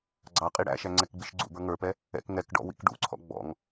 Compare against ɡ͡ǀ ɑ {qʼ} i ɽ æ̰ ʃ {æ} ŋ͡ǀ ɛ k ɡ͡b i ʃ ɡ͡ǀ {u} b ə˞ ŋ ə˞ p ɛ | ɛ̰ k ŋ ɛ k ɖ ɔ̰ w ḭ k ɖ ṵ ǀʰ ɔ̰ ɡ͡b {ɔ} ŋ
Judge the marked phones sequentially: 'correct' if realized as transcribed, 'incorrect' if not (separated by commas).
correct, correct, incorrect, incorrect